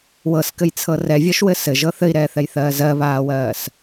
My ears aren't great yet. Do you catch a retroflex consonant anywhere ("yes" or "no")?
no